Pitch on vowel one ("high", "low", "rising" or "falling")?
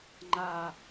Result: low